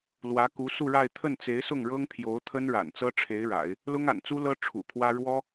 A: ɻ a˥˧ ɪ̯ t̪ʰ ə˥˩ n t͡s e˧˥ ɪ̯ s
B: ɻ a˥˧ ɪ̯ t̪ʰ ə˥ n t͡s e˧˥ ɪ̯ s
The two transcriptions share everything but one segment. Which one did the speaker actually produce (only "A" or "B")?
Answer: A